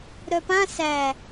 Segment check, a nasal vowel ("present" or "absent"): present